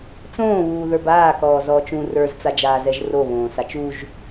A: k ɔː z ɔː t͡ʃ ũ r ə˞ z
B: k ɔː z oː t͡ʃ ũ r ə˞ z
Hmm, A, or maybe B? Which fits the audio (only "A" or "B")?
A